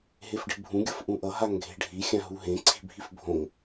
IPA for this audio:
ɦ e f ɖ i̤ bʱ ũ ɡʲ ʌ f ʔ ũ ʔ ʌ ɦ a ŋ ɡʱ e̤ ɖʱ i xʲ ã ɦ u ɦ ẽ ǀʰ i̤ bʱ i f bʱ õ ŋ

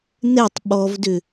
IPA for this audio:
n ɛ tˤ ɓ ɔ v d ʏ

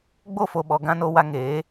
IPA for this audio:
ɡ͡b o˦˨ f o˨ ɓ ɔ˨ ɡ ã˧ n o˧ w a˧ ŋ eː˨˦

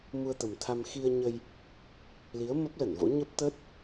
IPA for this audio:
m u˧ ə̯ t̪ ə˨˩ m t̪ʰ a˧ m x i˧ ə̯ ɲ ə˧ j | l i˨˦ ə̯ m ə˦˥ p̚ l ə˧˩ n v o̰˧˥ ɲ ə˦˥ p̚ t̪ ə˦˥ t̚

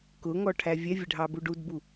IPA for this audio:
k ʊ ŋ ɔ ʈʰ æ vʲ ɛ vʲ ɛ ɖʱ ɑ b u ɖ u d b u

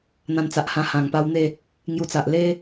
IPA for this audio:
n̪ ã˧ n t͡s a˨ ʔ h ã˧ h ã˨˩ ŋ p a˧ w n̪ e˥˧ | ŋ j u˧ t͡s a˨ ʔ l e˦

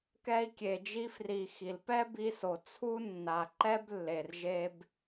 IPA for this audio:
k ɛ˧ i̯ kʲ e˨ d͡ʒ i˧ f r i˨ x i˨ l p ɛ˦ b i˧ s o˨ t͡sʰ u˦ nː a˨ ǃ ɛ˦ b lː e˨ r ʒ e˧ b

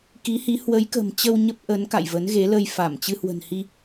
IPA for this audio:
k i˨˦ h i˨˦ h w ə˨˦ j k ə̤˨˩ m t͡ɕ ə˧ w ɲ ə˦˥ p̚ ʔ ə˨˦ n k a̰˧˨ j v ə˨˦ n ɣ e˨˦ l ə˧ j f a˧˩ m t͡ɕ ɨ˧ h w ə̤˨˩ n h i˧

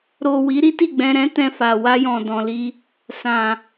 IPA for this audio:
ɾ o˨ w i˨˦ ɾ i˦ t i˦˨ ɡ͡b ɛ̃˧ ɾ ɛ̃˦ t ɛ̃˧ f a˨ w a˧ j ɔ̃˨ d ɔ̃˨ l i˧ | s ã˨

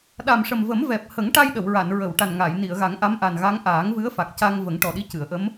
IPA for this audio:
ɗ a˨˩ m ʂ ə˨˩ m v ə˨˩˦ m v ɛ˨˩ p̚ h ə˨˩˦ ŋ ʈ a˧ j ɗ ə˨˩˨ w ɹ a˨˩˨ n ɹ ə˨˩˨ w ʈ a˨˩ n ŋ a˨˩˨ j n i˨˩˨ ə̯ ɣ a˨˩˦ ŋ ʔ a˧˥ m ʔ a˨˩ n ɣ a˧˥ ŋ ʔ aː˨˩˦ ŋ v ɨ˧˥ ə̯ f a˨˩ k̚ c a˧ ŋ v ə˨˩˦ ŋ ʈ ɔ˨˩ ɗ i˧˥ c ɨ˨˩˨ ə̯ ʔ ə˧˥ m

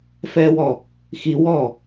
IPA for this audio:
f ɛː w ɔ | x i w ɔ

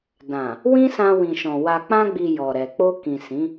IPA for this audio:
d ã˨ | w ĩ˦ s ã˧ w ĩ˨ ʃ ɔ̃˨ w a˨ k͡p ã˧ ɡ͡b i˨ j ɔ˨ ɾ ɛ˨ k͡p o˧ k ĩ˨ s ĩ˨˦

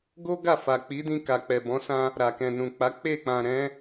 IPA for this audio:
ɡ o˦ ɡ a˦˨ f a˨ k͡p i˨˦ d ĩ˧ k a˨ k͡p ɛ˨ b ɔ̃˨˦ s ã˧ | ɾ a˨ k ɛ̃˨ n ũ˨ k͡p a˨˦ k͡p e˦˨ k͡p ã˨ ɾ ɛ̃˨˦

